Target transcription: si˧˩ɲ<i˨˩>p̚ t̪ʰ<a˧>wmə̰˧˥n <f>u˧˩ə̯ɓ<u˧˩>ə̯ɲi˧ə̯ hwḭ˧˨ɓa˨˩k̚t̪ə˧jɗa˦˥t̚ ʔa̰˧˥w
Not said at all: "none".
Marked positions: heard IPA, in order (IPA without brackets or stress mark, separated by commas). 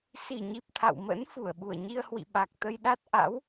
i˨˩, a̰˧˨, f, u˧˩